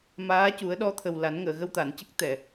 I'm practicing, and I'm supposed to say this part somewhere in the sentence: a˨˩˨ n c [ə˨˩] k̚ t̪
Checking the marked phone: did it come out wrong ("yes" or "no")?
yes